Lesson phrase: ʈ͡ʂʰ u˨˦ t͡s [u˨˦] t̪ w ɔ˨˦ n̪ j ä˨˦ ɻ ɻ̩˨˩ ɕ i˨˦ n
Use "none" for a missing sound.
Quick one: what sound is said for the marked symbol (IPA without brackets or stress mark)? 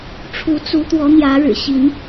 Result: u˨˦